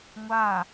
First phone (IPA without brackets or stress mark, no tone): ŋʷ